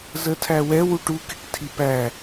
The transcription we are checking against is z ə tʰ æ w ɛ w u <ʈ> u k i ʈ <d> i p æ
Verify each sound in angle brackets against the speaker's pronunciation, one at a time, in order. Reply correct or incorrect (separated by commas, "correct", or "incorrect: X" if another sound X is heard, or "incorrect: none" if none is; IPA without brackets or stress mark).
correct, incorrect: tʰ